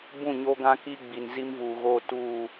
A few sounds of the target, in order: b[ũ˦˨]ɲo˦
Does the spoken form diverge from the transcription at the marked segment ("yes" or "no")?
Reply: no